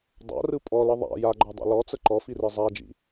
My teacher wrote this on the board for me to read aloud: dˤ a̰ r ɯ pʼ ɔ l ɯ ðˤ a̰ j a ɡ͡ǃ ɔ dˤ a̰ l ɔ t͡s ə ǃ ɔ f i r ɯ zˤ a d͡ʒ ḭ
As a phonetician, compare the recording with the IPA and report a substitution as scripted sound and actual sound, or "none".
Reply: none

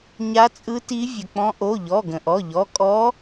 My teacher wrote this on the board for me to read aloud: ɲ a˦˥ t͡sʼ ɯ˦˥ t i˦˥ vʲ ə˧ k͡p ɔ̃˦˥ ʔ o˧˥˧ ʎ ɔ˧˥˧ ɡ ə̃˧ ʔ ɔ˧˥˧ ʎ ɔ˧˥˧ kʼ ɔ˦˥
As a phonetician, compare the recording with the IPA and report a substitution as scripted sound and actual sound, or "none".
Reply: none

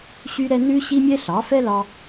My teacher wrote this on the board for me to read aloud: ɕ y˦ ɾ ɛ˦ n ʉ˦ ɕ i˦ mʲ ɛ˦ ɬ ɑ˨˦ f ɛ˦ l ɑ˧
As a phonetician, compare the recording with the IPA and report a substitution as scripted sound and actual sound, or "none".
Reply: none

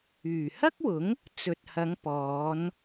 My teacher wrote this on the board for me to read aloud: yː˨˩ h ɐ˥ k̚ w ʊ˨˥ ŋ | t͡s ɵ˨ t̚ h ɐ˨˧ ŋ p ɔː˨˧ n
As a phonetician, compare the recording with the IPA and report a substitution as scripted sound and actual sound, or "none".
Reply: none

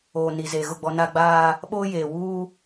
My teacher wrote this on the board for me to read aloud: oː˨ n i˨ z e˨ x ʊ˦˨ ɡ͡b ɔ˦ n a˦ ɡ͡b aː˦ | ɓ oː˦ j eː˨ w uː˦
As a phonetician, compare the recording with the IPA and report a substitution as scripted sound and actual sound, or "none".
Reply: x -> ɣ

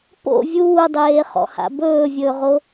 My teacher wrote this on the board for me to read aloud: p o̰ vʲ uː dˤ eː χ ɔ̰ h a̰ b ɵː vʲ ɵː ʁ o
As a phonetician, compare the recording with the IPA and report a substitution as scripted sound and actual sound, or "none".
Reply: none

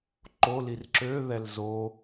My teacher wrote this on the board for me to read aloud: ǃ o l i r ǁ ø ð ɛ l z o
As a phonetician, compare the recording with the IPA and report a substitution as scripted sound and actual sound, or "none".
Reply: none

